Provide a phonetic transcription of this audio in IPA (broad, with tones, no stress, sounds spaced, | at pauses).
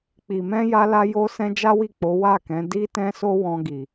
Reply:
k͡p i˨ m ɛ̃˧ j a˧ l a˧ j o˦ s ɛ̃˦ d͡ʒ a˦ w i˦˨ k͡p o˨˦ w a˦˨ k ɛ̃˨˦ d i˦ t ɛ̃˦ s o˦ w ɔ̃˧ ɡ i˨